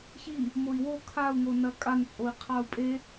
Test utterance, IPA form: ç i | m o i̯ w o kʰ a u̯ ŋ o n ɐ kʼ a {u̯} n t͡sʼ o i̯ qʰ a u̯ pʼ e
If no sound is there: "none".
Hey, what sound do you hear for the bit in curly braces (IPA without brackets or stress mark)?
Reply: none